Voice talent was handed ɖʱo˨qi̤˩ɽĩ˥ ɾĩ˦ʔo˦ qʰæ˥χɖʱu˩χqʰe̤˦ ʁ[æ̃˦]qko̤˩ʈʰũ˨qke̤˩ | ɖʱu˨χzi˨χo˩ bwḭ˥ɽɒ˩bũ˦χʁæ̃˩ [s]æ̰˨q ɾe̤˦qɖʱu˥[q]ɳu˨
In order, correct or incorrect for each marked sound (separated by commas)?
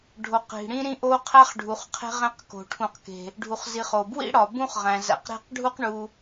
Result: correct, incorrect, correct